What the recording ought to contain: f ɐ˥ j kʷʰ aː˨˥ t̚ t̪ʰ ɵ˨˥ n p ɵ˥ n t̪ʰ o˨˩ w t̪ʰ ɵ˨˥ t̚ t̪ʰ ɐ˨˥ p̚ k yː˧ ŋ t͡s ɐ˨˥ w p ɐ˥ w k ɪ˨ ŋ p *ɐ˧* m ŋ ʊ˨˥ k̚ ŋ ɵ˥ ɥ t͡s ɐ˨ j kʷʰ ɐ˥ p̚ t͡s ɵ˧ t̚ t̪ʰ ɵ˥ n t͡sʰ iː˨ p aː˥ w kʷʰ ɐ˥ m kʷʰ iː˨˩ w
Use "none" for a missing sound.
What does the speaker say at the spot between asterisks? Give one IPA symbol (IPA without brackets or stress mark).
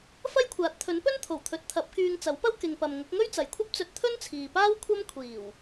ɐ˨